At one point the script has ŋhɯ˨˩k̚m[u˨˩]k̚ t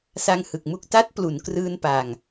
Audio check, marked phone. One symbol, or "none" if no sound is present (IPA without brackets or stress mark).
u˥˩